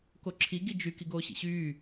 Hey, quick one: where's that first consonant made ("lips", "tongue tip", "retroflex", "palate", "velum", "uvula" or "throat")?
velum